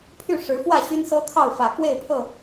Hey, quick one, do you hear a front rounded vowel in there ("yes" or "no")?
yes